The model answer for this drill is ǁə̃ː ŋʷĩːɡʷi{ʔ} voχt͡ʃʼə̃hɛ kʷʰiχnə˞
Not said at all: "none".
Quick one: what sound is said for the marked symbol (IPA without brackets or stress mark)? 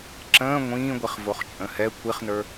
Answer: χ